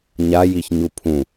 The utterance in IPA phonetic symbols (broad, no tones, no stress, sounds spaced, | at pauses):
ɲ a j i ç ɲ u pʰ ũ